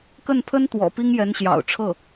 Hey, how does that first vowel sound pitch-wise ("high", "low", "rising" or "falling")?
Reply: falling